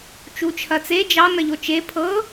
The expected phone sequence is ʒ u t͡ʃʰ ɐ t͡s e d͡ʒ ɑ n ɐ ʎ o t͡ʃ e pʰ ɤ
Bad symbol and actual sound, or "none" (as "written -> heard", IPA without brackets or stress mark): ʒ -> t͡ʃ